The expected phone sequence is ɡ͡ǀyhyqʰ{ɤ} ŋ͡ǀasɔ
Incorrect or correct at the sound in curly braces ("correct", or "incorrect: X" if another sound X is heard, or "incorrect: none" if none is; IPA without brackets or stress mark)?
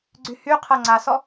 correct